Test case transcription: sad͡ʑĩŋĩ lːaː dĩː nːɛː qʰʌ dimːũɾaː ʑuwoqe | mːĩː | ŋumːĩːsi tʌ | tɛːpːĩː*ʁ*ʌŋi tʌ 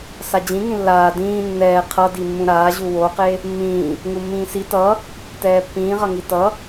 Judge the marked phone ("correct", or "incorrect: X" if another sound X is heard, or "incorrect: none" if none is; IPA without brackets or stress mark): correct